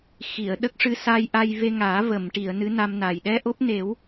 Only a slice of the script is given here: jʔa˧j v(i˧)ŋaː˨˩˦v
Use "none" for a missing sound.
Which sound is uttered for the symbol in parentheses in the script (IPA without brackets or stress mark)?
e˧